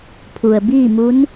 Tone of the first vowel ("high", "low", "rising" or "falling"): low